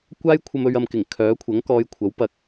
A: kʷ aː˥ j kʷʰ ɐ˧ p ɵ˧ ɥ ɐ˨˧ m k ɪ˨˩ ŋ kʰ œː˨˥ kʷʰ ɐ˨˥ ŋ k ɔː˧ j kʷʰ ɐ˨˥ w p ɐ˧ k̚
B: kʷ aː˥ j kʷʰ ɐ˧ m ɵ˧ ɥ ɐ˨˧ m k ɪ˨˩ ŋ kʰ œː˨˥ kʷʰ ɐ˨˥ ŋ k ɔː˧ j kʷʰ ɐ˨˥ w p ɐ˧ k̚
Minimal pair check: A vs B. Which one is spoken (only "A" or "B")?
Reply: B